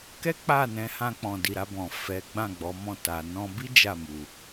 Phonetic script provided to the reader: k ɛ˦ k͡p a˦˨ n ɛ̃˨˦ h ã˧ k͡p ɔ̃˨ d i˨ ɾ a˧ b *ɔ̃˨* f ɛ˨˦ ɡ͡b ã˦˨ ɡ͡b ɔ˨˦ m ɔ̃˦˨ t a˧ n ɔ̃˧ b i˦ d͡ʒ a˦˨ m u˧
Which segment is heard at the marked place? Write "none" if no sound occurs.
ɔ̃˨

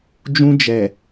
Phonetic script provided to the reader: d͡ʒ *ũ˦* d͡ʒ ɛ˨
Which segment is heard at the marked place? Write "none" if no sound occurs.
ũ˦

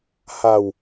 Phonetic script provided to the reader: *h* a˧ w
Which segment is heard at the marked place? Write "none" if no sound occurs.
h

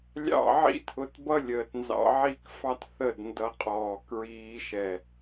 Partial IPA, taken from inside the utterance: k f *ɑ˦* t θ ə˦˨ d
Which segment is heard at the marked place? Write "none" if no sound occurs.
ɑ˦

